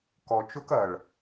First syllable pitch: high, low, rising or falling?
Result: low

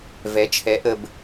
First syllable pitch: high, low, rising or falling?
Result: rising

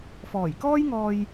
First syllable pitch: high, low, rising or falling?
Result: low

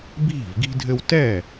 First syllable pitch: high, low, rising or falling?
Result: falling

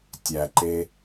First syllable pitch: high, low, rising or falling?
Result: low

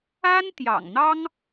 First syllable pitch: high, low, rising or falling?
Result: high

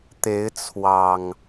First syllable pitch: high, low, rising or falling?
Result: rising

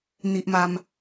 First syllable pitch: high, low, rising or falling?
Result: low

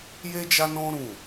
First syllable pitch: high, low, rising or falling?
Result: high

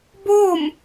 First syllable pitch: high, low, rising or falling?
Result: falling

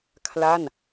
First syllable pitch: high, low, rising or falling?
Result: falling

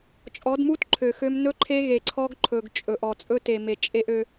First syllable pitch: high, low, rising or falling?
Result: rising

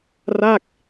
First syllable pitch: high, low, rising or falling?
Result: falling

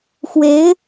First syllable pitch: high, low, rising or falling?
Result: rising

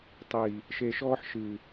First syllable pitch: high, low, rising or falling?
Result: low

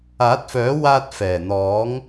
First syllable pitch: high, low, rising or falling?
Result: rising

